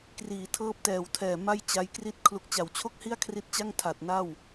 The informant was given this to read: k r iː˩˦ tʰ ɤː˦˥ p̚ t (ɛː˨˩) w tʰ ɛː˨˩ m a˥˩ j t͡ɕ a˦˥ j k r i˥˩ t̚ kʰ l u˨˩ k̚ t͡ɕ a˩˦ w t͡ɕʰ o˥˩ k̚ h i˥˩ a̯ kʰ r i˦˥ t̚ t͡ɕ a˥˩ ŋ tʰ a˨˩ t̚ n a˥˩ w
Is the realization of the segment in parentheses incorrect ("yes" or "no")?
no